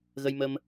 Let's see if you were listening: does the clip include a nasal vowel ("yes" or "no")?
no